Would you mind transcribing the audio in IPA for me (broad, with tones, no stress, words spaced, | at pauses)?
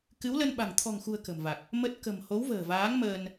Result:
kɨ˨˦wlə˧nɓa̤˨˩ŋ t̪ʰɔ̤˨˩ŋxṳ˨˩ə̯ kə̤˨˩mva˨˩k̚ | mə˦˥t̚ kə̤˨˩m ho˨˦w və̤ː˨˩vaː˨˦ŋ məː˧n